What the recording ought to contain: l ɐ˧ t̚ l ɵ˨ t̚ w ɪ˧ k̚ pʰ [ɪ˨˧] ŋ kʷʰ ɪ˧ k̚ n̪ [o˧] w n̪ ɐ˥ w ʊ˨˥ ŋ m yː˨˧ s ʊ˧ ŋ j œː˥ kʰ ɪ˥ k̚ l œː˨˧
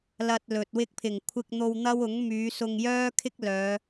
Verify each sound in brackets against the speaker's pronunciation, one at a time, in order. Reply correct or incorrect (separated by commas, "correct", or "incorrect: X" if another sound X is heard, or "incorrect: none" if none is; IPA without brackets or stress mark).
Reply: incorrect: ɪ˨˩, correct